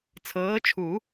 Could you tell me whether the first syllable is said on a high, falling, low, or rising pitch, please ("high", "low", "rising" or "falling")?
rising